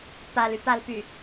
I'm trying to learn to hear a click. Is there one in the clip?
no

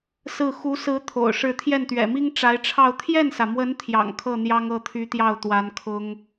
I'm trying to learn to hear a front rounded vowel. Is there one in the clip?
yes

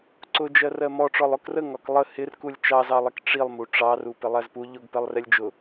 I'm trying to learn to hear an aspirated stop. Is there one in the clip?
no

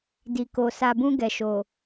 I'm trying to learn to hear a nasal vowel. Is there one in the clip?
yes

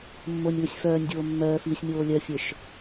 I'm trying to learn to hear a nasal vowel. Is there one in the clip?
no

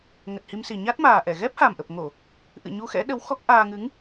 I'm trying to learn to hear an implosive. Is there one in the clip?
yes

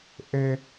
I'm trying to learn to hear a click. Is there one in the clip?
no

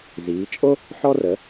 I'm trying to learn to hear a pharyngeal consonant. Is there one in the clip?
yes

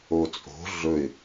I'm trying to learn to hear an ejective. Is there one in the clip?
yes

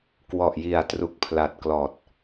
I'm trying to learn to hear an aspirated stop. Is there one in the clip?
yes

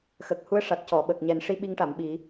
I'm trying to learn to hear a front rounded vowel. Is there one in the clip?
no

